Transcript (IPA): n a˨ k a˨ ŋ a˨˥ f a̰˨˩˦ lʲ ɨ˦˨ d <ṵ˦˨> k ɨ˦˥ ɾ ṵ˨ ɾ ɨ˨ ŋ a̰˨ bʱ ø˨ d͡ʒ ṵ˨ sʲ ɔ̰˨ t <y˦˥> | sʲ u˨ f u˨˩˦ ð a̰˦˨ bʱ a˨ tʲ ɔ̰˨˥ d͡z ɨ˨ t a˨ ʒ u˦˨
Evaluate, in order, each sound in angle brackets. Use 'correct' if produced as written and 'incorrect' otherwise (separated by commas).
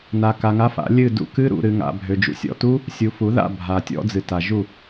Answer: correct, incorrect